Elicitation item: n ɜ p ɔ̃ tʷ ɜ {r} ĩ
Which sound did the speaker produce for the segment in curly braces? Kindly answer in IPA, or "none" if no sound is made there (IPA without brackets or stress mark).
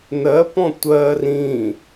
r